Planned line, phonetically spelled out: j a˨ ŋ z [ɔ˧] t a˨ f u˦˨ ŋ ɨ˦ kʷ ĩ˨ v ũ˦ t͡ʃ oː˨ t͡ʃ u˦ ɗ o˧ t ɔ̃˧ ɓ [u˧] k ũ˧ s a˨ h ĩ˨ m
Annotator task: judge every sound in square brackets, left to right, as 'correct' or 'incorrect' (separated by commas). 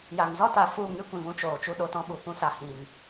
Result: incorrect, incorrect